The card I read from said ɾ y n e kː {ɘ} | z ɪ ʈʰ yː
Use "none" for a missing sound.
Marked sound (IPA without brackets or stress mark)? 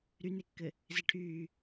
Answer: ɘ